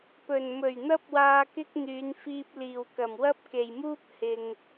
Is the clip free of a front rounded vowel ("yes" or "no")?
no